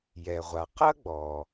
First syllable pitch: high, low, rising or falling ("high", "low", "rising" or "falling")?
low